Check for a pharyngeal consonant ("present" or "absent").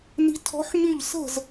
present